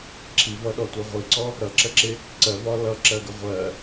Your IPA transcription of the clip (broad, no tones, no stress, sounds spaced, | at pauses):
ǁʰ i v ʌ ɗ ɔ tʷ ɜ ʁʷ i ǀ ɔ | ɾ ʌ ǁ ə ǁ ɪ | ǀ ɜ v ɒ l ʌ ǁ ɜ ɡ ə ʁʷ ɜ